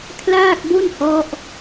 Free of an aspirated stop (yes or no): no